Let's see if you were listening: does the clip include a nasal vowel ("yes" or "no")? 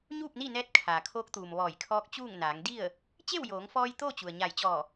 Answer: no